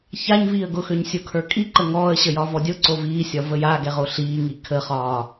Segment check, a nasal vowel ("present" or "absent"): absent